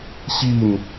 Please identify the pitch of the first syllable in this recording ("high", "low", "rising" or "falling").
falling